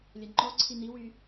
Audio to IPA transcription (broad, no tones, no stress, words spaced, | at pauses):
lʲɐŋ͡ǃɔǀʰi n̪iwy